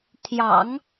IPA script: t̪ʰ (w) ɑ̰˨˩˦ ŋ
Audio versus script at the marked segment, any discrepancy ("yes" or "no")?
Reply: yes